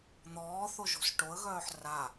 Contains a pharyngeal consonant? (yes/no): yes